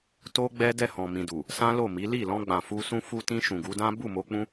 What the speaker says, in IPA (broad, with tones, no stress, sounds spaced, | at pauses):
t o˦ ɡ͡b ɛ˦ d ɛ˦˨ h ɔ̃˨ m ĩ˨ d u˨ | s ã˦ l o˦˨ m i˨˦ l i˦˨ l ɔ̃˧ ɡ͡b ã˨ f u˧ s ũ˦ f u˧ t ĩ˧ ʃ ũ˨ ɡ u˨˦ d ã˦ b u˦˨ m o˧ k͡p ũ˦